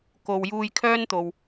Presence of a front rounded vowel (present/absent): present